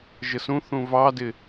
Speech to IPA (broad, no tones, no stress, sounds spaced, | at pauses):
ʒ ə s ũ θ ũ v ɑ d ɪ